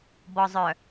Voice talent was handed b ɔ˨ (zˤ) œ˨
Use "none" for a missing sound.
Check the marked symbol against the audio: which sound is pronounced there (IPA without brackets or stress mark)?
zˤ